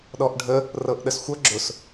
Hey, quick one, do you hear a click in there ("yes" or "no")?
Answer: yes